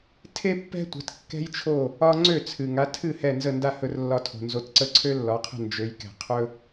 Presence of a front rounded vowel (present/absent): present